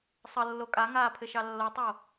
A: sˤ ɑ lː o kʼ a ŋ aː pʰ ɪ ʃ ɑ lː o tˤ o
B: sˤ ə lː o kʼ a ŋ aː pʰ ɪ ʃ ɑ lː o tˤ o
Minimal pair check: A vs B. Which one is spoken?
B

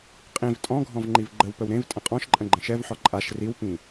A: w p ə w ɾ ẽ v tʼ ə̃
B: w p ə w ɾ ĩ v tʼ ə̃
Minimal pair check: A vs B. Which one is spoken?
A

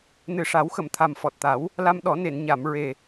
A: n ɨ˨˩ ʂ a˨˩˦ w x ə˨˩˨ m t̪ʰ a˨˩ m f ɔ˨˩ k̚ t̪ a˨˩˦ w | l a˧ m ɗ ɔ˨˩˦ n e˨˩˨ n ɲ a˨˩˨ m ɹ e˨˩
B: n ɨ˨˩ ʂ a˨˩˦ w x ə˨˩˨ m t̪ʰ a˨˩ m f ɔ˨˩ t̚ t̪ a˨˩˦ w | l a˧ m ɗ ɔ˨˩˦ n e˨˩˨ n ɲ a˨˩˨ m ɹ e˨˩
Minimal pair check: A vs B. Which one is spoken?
B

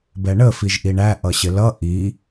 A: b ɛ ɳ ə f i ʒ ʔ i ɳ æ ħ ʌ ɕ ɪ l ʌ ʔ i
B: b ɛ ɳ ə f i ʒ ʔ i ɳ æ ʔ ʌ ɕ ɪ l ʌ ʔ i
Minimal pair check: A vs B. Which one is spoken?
B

